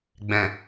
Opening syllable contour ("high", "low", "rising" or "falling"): low